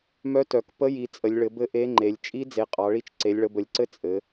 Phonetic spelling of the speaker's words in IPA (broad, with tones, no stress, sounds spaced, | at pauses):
m œ˧˥ t œ˩˧ k p ə˧˥ j i˩˧ t͡sʼ ə˩˧ lʲ ɭ ɘ˩˧ b ɘ˧˥ ʔ e˧˥ ŋ͡ǃ e˩˧ lʲ t͡ʃʼ i˧˥ d͡z e˩˧ qʼ ɑ˩˧ ɭ i˧˥ t͡ʃ ǀ e˩˧ lʲ ɭ ə˩˧ b ə˩˧ lʲ ǀ ɘ˧˥ t͡sʼ ɘ˩˧